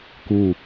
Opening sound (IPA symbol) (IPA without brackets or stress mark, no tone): k